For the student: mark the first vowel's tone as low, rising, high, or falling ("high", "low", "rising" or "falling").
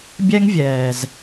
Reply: high